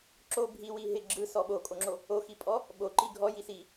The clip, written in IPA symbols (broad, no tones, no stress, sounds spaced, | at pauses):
ǁ o bʱ i w i ɦ ɪ ɡ͡ǁ ɯ s ɔ ɓ o kʼ o ŋ͡ǁ o | o x i pʼ ɔ | ɓ o ǃ i ɡʱ ɔ j i s i